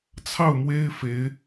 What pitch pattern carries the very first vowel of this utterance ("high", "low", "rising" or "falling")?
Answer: falling